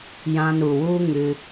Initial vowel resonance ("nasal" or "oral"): nasal